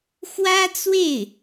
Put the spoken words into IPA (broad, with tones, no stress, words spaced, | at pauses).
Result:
xwä˥t͡swe˥˩ɪ̯